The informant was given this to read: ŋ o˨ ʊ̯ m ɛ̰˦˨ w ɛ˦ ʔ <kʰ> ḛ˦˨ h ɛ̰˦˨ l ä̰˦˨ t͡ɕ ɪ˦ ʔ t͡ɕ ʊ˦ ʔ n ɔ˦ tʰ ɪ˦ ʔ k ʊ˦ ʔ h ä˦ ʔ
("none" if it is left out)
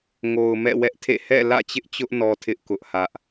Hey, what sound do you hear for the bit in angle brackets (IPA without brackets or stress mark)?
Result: tʰ